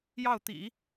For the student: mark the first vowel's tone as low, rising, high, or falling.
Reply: falling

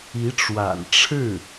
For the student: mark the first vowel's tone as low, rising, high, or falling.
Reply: rising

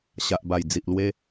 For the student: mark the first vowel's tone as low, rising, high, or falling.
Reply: low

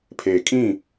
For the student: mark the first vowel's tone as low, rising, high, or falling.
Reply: low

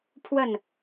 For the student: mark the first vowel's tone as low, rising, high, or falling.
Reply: falling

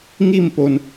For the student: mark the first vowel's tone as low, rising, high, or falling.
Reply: falling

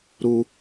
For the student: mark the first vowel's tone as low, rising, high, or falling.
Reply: high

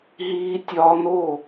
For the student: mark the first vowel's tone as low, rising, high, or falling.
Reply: high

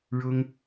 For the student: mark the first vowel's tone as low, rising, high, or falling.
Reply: high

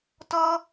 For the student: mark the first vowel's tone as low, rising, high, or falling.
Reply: high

